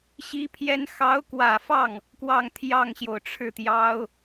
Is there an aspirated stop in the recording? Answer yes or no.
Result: yes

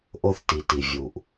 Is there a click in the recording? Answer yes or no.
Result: no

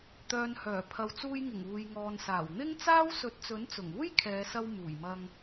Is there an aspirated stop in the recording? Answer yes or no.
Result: yes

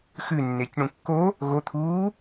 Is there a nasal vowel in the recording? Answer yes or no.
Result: yes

